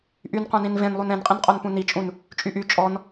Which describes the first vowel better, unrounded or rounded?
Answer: rounded